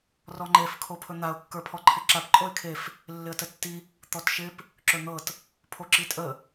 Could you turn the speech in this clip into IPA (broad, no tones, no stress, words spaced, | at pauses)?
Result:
rɔŋ͡ǃef kʰopʰɵn̪aʊ̯ kːə˞pʰɔǃʰɪǁap ǃʼoɪ̯kʰef | lːɪə̯tətːi | t̪ɔtʃɪp | ǁɵn̪ɤt | pʰoǁitʼə